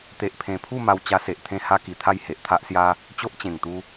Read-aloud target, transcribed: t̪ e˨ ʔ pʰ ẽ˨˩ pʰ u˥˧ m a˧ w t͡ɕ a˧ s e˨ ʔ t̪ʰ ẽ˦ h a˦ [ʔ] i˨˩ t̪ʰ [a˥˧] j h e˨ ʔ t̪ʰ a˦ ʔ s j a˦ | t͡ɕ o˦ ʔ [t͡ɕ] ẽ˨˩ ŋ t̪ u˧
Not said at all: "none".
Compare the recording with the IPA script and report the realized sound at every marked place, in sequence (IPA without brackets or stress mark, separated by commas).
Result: k, a˥˧, t͡ɕ